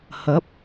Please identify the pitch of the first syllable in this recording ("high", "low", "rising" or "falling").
rising